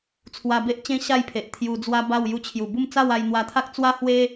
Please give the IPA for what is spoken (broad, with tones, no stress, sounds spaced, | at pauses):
t͡sʰ w a˧ b e˦ ʔ t͡ɕ ẽ˦ ɕ a˥˧ j pʰ e˨ ʔ t̪ʰ j u˧ d͡z w a˦ b a˥˧ w j u˧ t͡ɕʰ j u˨˩ b u˥˧ m t͡s a˥˧ w a˧ j n̪ w a˧ t̪ʰ a˦ k̚ t͡s w a˦ h w e˦